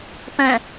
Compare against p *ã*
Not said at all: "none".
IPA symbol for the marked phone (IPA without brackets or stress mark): ə̃